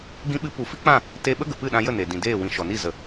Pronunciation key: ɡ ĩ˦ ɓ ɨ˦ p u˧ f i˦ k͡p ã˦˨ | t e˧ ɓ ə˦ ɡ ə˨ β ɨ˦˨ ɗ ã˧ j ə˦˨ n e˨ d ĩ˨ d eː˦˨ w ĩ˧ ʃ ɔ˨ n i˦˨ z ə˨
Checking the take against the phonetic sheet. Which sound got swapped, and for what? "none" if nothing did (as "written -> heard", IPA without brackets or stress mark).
β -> p